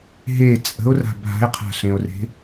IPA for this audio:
ɦ e t͡sʼ ə̤ o̯ r a̤ bʱ a̤ e̯ qʰ a̤ ɬ ẽ o̯ r e̤

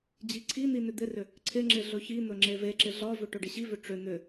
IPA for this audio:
d͡ʑ i ǀʰ i n̪ i n ʏ d̪ ɪ r ʏ | ǀʰ ɪ ŋ͡ǁ ɪ ɮ ɵ ç i n̪ ɵ ŋ͡ǁ e v e ǁ ɪ ɮ ɒ v ʏ ʈ ɵ ɖ ɪ ɕ i v ʏ ʈ͡ʂ ʏ n̪ ʏ

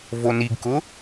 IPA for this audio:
v o n i ɡ k ʊ

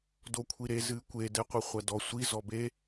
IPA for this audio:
d o kʷʰ i ɾ e z ɨ kʷ e d ɛ qʷ ɨ χʷ ɐ d ɔ sʷ i z ɔ b e

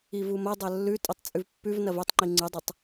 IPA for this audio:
i v u m ɐ dˤ ɐ lː ʉ tʼ ɵ tˤ t͡sʼ ʉ v pː ʉ v n ɐ v ɵ tˤ ŋ͡ǃ i ŋ͡ǀ ɨ dˤ ɐ tˤ

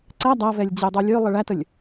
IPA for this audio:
ǀ æ dˤ æ v ɛ lʲ d͡ʑ e dˤ o lʲ ø lˠ ə ɭ æ t ə lʲ

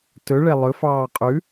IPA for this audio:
t ɵ ɭ ɛ lˠ ɵ f ɑː qʼ ʉ

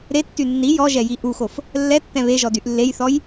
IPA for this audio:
ɾ e tː y nː i j ɔ ʒ ɛ j i ʔ u x o f | lː ɛ tː ɛ̃ β e ʒ ɔ d y ʔ lː e j θ ɔ j

